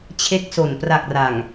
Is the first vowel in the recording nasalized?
no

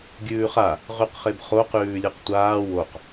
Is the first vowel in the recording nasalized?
no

